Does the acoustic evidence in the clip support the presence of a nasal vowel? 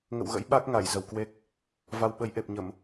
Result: no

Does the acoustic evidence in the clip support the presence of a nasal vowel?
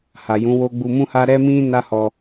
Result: yes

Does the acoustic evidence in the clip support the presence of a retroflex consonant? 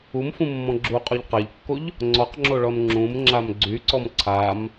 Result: yes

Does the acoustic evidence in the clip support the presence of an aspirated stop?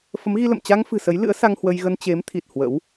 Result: yes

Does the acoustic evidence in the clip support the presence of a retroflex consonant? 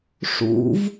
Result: yes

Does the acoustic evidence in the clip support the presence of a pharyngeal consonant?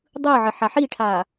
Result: yes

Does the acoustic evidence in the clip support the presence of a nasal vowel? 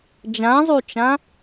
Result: yes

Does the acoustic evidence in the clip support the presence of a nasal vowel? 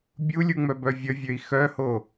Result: no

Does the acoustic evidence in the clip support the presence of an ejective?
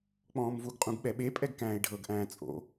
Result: yes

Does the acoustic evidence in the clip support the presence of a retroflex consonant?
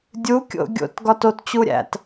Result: no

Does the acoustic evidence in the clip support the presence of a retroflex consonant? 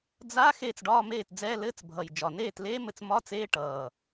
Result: yes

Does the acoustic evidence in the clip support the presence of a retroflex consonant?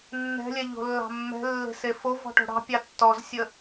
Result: yes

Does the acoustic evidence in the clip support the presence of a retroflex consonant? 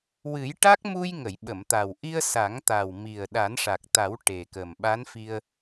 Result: yes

